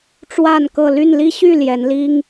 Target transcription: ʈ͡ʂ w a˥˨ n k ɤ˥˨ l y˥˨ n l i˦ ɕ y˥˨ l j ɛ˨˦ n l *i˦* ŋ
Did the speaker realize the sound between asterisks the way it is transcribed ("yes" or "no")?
yes